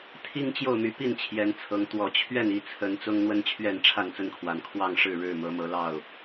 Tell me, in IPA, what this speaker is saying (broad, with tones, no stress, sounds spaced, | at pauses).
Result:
t̪ʰ i˦ ŋ t͡ɕ j o˥˨ ʊ̯ m y˨˦ p i˥˨ n t͡ɕʰ j ɛ˨˦ n t͡sʰ ɤ˨˦ ŋ t̪ w ɔ˨˩ t͡ɕʰ ɥ ɛ˥˨ n i˥˨ t͡sʰ ə˨˦ n t͡s ʊ˦ ŋ n̪ w ə˦ n t͡ɕʰ ɥ ɛ˥˨ n ʈ͡ʂʰ a˥˨ n t͡s ə˦ n kʰ w a˨˩ n kʰ w ɑ˥˨ ŋ ʂ ɻ̩˥˨ ɻ ɻ̩˥˨ m ɤ˨˦ m ɤ˨˦ l ɑ˥˨ ʊ̯